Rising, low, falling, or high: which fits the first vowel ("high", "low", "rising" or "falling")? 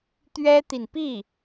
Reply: high